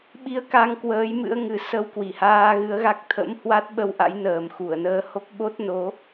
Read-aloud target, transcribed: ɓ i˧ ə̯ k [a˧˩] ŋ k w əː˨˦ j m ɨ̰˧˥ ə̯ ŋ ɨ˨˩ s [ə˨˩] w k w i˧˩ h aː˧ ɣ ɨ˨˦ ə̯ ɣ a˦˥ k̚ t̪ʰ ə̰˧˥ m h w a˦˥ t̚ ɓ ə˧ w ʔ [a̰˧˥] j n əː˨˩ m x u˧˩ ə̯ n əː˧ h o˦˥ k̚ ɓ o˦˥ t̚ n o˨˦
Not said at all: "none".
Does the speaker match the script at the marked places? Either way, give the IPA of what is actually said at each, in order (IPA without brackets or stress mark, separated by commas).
a˧, ə˧, a̰˧˥